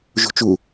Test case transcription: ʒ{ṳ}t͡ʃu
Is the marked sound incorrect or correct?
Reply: correct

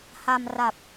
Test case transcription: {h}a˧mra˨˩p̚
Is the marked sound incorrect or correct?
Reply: correct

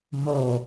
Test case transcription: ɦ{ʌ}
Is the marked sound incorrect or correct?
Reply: incorrect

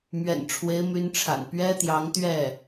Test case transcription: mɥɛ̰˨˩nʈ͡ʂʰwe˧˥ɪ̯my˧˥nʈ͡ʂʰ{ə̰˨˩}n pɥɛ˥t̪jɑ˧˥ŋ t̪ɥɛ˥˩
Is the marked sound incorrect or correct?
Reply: incorrect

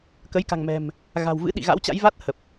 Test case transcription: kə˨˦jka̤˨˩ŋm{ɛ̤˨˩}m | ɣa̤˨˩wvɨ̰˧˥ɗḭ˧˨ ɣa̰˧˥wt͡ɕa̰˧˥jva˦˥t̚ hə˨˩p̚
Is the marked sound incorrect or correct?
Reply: correct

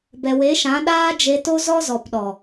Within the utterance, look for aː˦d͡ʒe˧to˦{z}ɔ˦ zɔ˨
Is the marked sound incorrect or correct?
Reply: correct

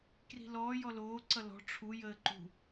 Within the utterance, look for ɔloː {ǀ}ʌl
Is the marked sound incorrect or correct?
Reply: correct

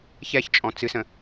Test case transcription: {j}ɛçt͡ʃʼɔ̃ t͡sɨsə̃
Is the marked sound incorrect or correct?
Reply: incorrect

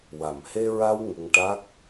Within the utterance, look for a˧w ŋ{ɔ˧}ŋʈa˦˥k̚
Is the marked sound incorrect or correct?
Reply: incorrect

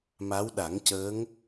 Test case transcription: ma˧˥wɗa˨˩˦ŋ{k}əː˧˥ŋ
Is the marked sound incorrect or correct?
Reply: incorrect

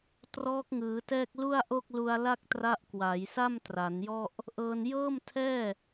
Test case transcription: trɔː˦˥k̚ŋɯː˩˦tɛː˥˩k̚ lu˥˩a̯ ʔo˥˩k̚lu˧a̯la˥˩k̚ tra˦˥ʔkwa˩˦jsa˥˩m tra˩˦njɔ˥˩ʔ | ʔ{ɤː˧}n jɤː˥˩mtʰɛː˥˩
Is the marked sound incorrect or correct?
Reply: correct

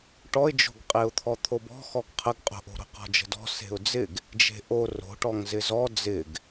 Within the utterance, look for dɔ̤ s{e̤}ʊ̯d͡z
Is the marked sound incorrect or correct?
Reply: correct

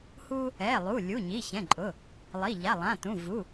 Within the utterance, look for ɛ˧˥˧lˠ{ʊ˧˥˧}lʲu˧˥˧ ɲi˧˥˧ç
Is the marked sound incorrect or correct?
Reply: incorrect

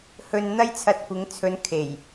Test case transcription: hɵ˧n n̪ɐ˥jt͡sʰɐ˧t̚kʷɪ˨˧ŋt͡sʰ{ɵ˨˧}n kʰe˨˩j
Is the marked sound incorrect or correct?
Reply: correct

